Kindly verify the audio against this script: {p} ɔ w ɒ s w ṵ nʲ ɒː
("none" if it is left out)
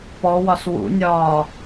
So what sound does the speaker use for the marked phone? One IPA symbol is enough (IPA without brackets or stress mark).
p